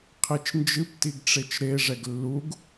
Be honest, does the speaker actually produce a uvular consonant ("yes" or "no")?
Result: yes